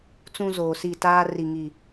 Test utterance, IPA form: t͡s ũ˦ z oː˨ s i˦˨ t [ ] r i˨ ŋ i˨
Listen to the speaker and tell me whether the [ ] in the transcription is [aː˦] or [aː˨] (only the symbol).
aː˦